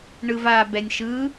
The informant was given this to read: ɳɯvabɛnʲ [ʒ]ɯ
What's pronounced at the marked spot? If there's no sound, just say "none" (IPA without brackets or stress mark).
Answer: ʃ